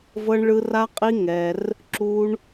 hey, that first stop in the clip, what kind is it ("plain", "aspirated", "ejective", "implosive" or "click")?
ejective